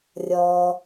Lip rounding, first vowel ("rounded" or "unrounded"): rounded